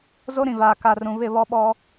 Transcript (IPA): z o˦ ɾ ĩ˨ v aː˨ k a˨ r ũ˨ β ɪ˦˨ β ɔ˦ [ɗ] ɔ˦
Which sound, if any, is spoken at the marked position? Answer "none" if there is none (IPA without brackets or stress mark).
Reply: ɓ